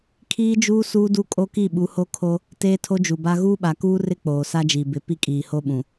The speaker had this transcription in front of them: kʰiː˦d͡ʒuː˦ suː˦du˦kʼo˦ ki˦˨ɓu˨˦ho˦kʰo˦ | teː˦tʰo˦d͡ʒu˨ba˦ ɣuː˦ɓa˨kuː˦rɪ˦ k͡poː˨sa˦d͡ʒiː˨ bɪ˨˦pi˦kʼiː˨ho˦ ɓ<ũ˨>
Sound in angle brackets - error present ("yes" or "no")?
no